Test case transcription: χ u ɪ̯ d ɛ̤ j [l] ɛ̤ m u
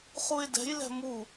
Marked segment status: correct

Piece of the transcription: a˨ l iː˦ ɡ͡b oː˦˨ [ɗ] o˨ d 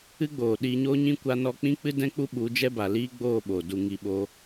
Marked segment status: incorrect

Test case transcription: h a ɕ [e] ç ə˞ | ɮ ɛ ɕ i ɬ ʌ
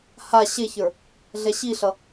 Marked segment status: correct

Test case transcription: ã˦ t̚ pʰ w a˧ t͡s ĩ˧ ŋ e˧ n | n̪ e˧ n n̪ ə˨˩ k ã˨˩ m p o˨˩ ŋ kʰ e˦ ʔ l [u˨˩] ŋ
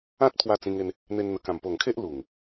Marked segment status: correct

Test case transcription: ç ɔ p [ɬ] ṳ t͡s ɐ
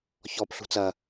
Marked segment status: correct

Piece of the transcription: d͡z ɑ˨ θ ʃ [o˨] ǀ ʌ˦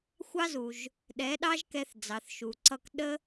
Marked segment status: incorrect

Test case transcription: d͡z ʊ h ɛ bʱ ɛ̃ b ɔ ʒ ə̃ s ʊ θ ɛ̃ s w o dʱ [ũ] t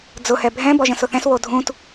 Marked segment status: correct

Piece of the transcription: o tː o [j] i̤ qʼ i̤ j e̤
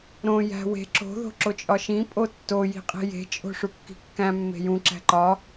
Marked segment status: correct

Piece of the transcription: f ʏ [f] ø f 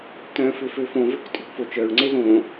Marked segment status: correct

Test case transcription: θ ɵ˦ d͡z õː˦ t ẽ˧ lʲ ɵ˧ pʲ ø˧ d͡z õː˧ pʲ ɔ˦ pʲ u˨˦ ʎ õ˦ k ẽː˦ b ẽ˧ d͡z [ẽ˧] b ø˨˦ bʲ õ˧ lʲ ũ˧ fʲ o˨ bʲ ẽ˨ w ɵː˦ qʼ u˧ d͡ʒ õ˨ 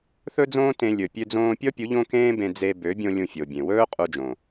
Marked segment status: incorrect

